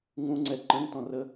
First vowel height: high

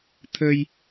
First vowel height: mid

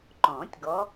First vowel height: mid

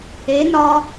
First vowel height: mid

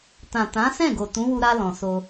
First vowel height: low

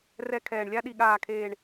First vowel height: mid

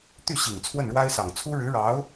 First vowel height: high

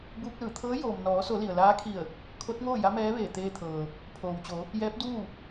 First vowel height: high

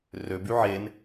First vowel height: mid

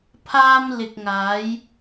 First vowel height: low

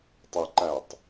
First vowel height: mid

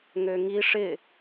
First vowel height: mid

